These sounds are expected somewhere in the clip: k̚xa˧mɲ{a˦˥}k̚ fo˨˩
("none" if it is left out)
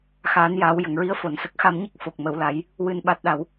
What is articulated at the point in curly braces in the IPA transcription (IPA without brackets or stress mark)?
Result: ə˦˥